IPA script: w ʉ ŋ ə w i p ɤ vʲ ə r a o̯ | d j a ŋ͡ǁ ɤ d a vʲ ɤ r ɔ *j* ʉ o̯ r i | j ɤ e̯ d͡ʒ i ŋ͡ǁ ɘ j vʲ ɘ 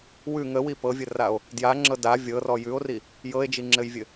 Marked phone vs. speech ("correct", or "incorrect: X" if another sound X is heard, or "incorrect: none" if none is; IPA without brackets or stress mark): correct